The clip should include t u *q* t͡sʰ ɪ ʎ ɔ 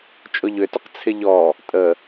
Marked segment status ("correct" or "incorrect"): correct